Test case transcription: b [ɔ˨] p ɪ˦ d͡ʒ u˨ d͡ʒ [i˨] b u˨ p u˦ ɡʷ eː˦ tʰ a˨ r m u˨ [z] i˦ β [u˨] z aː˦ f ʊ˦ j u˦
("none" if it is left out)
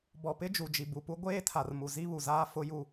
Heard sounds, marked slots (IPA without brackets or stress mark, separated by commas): ɔ˨, i˨, z, u˨